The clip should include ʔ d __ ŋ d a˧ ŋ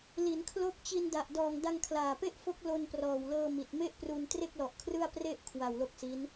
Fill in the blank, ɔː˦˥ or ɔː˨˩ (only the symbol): ɔː˨˩